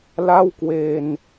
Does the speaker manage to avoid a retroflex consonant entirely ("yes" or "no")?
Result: yes